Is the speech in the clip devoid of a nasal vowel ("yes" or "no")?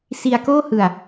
yes